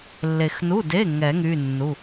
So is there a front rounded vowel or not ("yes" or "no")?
yes